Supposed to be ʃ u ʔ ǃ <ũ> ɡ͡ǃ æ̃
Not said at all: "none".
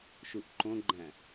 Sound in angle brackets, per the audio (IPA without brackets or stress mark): õ